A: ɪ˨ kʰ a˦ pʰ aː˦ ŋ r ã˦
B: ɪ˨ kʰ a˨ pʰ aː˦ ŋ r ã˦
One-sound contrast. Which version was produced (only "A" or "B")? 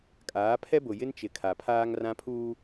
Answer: B